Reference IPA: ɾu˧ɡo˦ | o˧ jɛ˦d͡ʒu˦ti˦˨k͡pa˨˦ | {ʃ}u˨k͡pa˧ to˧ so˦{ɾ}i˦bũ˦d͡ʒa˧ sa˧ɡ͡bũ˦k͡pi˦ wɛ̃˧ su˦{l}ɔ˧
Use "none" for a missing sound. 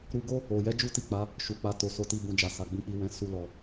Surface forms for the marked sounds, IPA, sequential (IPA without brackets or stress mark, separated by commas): ʃ, t, l